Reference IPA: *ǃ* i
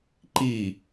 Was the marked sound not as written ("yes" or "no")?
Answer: no